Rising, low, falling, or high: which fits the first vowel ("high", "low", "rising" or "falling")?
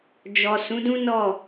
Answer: low